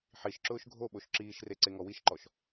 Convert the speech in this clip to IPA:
ħ i ʃ ǁ ʊː ʃ ɡʱ o ɓ o ʃ ǁ iː ʃ r e ǀ e ŋ ɔ w i ʃ ǃ ɔ ʃ

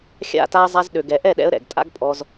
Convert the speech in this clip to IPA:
xʲ a̰˦˨ t a˧ ə̯ zˤ a˧ z ɗ ø˨ ɡ ɛ˨ ʔ ɛ˦˨ ɗ ɛ̰˧ ə̯ ɾ ɛ̰˨ ɡ tʼ a̰˦ ɡ pʼ ɔ˧ z

